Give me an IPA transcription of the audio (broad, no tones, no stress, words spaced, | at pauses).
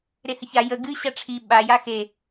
ɾehəça jə ɡɨ ɕaʈ͡ʂʰi ɓa jaxe